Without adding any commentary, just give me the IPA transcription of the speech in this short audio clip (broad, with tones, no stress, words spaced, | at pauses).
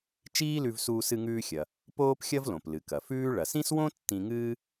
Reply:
t͡ʃiː˥lʉ˧v suː˧sɨ˧ŋʉː˧xʲɐ˩ | poː˥pxʲɐ˥vlõ˩p lɨ˩kɐ˩fʉː˥ ɭɐ˩sĩ˥swõ˥ tːĩ˧ŋɨː˥